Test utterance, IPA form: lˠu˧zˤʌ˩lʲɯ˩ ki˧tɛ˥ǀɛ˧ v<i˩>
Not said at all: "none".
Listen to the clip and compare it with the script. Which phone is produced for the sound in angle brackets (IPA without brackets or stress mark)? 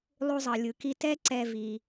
i˩